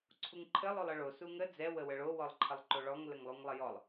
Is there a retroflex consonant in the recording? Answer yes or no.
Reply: yes